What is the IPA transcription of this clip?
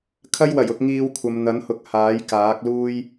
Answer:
kʰ ɐ˥ j w ɐ˨˩ j ʊ˨ k̚ ŋ iː˧ w kʷʰ ɐ˨ m n̪ ɐ˨˥ n h ʊ˨˥ k̚ h aː˨˥ j k aː˨˥ k̚ l uː˥ j

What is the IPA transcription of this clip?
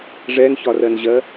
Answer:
ʐ ɛ n ç ɒ r ɜ n ʑ ɜ

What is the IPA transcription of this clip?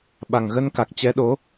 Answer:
ɓ a˨˩ ŋ ɣ ə˧ n k a˨˩ k̚ t͡ɕ ɛ˨˦ ɗ o˨˦

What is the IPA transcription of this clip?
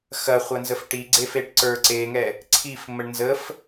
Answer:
x ɐ χʷ ɐ n z ə f ʈ i ɡ͡ǀ e f e ʈ ǀ ə˞ ǀ e ŋ ɛ | ǀʰ i f m ə ɳ n z ə f

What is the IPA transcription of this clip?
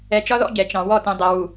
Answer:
ɛ˨ t͡ʃ ɒ˦ ð ɔ̰˦ ɟ ɛ˨ t͡ʃ ɑ̃˨ w ɔ˦˨ t ɛ̃˨ dˤ ɛ˨ w u˨

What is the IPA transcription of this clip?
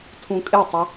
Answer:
tʰ ũ kʼ ɪ tˤ ə

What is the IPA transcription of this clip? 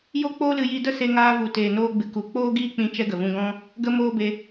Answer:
j o˦ k͡p oː˦ l ɨ˧ j i˧ d ə˦ s e˧ ŋ aː˧ v u˨ t eː˨ n oː˧ ɡ͡b ɨ˨ k u˨ k͡p oː˦ ɡ iː˦ k͡p ĩ˧ t͡ʃ ɛ˦ ɡ ə˨ v ũ˧ ɡ ɔ̃˦ | ɡ ə˦ m oː˦ b e˧

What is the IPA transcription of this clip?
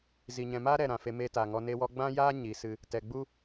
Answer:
z i˨ ɲ ɛ̃˨ m aː˦ ɾ ɛ˨ ɾ ã˨ f e˧ m eː˧ t aː˨ ŋ ɔ˧ n e˧ w ɔ˧ ɡ͡b ã˦ j aː˦ ɲ i˨˦ s ɨ˧ | t ɛ˨ ɡ͡b u˦

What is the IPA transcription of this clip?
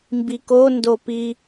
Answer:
m b i k o n d o p i

